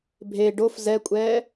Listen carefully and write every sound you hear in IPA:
bʱ e ɖ o f z ɛ kʷʼ ɛː

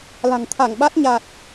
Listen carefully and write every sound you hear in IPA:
l a̤˨˩ ŋ t̪ʰ a˧˩ ŋ ɓ a˦˥ t̚ ɲ a˨˩ t̚

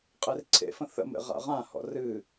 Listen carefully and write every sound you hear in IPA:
qʼ e r ǀʰ ḛ f ə̃ θ ə̰ m ḛ ʁ a̰ ʁ ã h ɔ̰ r ɨ

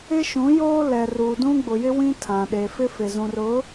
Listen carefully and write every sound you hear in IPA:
ɪ˦ ʃ ũ˨˦ j oː˦ l ɛ˨ r uː˨ d ũ˦ ɡ͡b ʊ˨ j ɪ˦ w ĩ˦ tʰ ã˨ ɗ e˨ f ɪ˦ f ɪ˨ z ũ˨ r ʊ˨˦

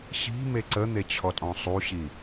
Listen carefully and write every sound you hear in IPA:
ɕ i̤ m e ǀ ə n̪ e t͡ɕʰ ɔ tʼ ɔ̃ sˤ u ɕ i

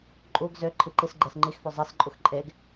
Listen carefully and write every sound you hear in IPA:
ǃʼ u ɡ z ø ǃʰ i ǃ i s ɡ͡ǃ e s ŋ͡ǃ i x f ø zˤ i s ǃʼ u x ǃʼ e ɡ

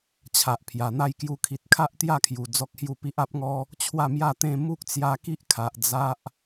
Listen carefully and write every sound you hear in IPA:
t͡ɕʰ a˨ ʔ pʰ j a˨˩ n̪ a˥˧ j k j u˧ kʰ i˨ t̚ kʰ a˦ ʔ t̪ j a˥˧ kʰ j u˨˩ d͡z ɔ˦ k̚ h j u˥˧ p i˦ ʔ a˦ p̚ ŋ ɔ˦ | t͡ɕʰ w a˥˧ m j a˥˧ t̪ ẽ˥˧ m u˦ k̚ t͡s j a˧ k i˦ ʔ kʰ a˨ ʔ d͡z a˦ ʔ

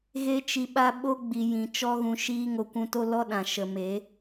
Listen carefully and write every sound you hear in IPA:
ɣ e˦ t͡ʃ i˧ ɓ a˦ ɓ o˦ ɡ͡b i˨ j ĩ˨ t͡ʃ ɔ˦ ɣ ũ˧ ʃ iː˦ ŋ o˧ kʷ ũ˧ t o˦ l ɔ˦ ɗ ã˨ ʃ ə˨ m e˨˦

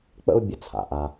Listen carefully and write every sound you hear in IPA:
k͡p ə̰˦ u̯ bʲ ə˧ t͡sʰ a̰˨ ʔ a˧

